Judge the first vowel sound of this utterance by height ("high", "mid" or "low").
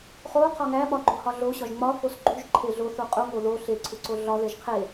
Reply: mid